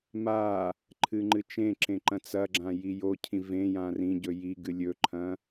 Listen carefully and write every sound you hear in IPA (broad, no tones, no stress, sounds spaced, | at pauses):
m a | ǃʰ ɨ ŋ͡ǃ ɨ t͡ʃ ẽ ǁ ẽ ǃ ɐ̃ t͡s ɐ ɡ͡ǁ ã j i j o cʰ ĩ v ẽ j ã r ĩ ɟ ɵ j i ɡ ɨ lʲ ɵ ǃʰ ɐ̃